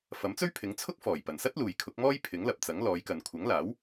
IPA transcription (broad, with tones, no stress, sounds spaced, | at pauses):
f ɐ˨˥ m t͡s ɵ˥ ɥ pʰ ɪ˨˥ ŋ t͡sʰ ʊ˥ k̚ f ɔː˨˩ j p ɐ˨˩ n s ɐ˥ t̚ l uː˨ j kʰ ʊ˨˥ k̚ m ɔː˥ j pʰ ɪ˨˥ ŋ l ɐ˨ p̚ t͡s ɐ˨˥ ŋ l ɔː˨˧ j k ɐ˨ n kʷʰ ɐ˨˥ ŋ l aː˨˥ w